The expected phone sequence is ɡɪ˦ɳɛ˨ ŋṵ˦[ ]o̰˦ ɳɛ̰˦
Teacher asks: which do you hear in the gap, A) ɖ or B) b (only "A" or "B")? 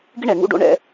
A